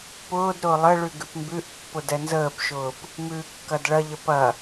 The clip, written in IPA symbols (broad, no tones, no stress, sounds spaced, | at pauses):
p ʊː d ɾ ʊː lˠ ə ɭ ʉ ɡ ʉ p m b ʉ ʔ pː ʊ d ɛ n z əː p ʃ ʊː p | m ʉː kː ɐ d ɭ ɐ ʎ ə p ɐ